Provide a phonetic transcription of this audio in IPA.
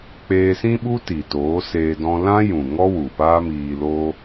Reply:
k͡p eː˧ s ĩ˦ ɓ u˦ t i˨ t oː˨˦ s eː˧ d ɔ̃˧ l ã˦ j ũ˨ ŋ ɔ˦ w u˨ p aː˦ m iː˧ l oː˦

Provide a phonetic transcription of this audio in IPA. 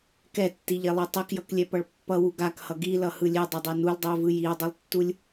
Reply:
k ɛ tː i ʎ e lˠ i tˤ ɛ k j ʌ k lʲ ɛ p ʌ ɭ pː ʌ w u ɡ a k h ʌ ɡ i l ʌ h ɯ lʲ e dˤ ɛ dˤ e n u l dˤ ɯ ə̯ v ɯ j i ə̯ dˤ ɯ lˠ tː u lʲ

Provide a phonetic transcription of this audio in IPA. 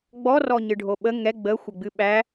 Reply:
ɡ͡b ɔ r ɔ ɲ ɨ ɖʱ o ɓ ə ŋ ɛ ɡ͡b ə xʷ ə ɡ͡b ɨ ɓ æ

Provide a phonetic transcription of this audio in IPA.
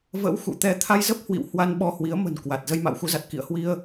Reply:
v ə̰˧˥ w x ṵ˧˨ t̪ ɛ˧ t̪ʰ a˧ j z ə˦˥ p̚ h w ḭ˧˨ w h w a˧ n ɓ ɔ˧ h w i˨˦ ə̯ m ə̤˨˩ n k w a˨˩ t̚ z ə˧ j m a̰ː˧˨ w x u˨˦ z a˨˩ t̚ k ḭ˧˨ ə̯ h w i˧ ə̯

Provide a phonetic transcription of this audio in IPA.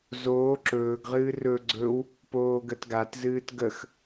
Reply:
z oː ǁ ɵː ɡ ʁ ɨː r ɵ ɡ͡ǀ ɵ w | p oː ɡ ə t ɡ a t z ɨː t ɡ ə x

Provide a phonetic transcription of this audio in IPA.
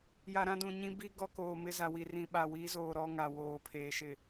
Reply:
j a˨ ɾ ã˦ d ũ˨ ɲ ĩ˦ b i˦ ɡ ɔ˦ k oː˨ m ɪ˦ z a˨ w i˨ r ĩ˨ ɓ a˨ w i˨˦ z oː˨ ɾ ɔ˦ ŋ a˨ w oː˨ pʰ eː˨ ʃ ɪ˨

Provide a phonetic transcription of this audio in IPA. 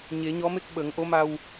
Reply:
ɲ e˨˩˦ ɲ ɔ˧˥ m e˦˥ k̚ ɓ ə˨˩˦ ŋ ʔ o˧˥ m a˧ w

